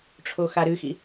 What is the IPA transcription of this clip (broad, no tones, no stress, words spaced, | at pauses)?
ʈ͡ʂʰoxaɾɨxḭ